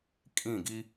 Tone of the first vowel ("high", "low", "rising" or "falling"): falling